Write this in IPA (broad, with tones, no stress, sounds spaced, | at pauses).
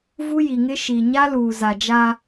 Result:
v u˦ j i˨ ŋ ɪ˦ ʃ i˨ ɲ a˦ l uː˨ z a˨ d͡ʒ a˦